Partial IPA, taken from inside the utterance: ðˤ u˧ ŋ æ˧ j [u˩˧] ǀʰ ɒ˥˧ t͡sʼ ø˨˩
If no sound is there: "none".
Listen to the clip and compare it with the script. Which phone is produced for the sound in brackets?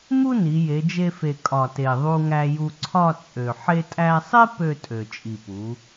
u˧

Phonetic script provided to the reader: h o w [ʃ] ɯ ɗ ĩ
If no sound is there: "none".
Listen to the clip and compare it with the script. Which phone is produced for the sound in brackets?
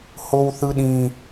θ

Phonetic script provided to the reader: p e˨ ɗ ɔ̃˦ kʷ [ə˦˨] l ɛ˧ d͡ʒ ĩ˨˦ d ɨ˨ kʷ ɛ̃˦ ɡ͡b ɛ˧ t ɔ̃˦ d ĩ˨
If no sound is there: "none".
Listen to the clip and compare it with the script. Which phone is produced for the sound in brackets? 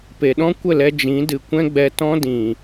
ə˦˨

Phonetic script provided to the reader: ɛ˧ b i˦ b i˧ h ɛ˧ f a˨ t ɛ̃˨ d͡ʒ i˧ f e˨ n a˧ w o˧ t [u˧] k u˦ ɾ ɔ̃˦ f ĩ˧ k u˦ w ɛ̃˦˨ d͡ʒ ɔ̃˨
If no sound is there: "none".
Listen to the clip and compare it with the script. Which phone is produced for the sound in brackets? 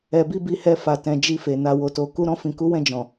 o˧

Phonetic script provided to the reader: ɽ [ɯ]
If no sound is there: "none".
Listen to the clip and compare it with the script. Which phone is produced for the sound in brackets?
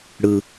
ɯ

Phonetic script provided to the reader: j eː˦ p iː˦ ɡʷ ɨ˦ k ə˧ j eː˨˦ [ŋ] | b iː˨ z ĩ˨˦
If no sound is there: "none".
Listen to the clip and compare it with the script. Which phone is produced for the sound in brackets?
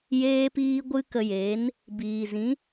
n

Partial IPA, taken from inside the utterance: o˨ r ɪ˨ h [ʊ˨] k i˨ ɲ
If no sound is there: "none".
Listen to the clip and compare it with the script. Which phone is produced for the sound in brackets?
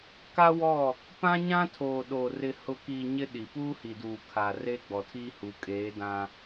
ʊ˨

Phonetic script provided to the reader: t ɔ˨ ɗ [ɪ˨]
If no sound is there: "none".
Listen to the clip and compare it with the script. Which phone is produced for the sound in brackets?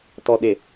ɪ˨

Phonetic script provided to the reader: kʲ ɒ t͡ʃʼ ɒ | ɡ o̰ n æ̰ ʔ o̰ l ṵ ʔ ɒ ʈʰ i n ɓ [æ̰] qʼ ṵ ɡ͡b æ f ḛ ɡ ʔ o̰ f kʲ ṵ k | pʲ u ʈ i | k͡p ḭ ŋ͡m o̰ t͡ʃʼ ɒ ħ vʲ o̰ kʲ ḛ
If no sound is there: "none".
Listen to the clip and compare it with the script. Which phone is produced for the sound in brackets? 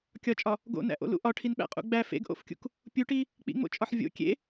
æ̰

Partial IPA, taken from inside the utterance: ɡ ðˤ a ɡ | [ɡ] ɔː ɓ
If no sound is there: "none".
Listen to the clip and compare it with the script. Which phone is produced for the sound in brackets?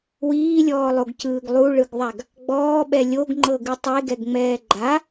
ɡ͡b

